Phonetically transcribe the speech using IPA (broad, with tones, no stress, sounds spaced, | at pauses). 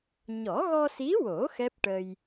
ɲ ɔ˨˩˦ ɣ ɔ˧ s i˧˥ w o˨˩˦ x ɛ˦˥ p̚ ʈ ə˧ j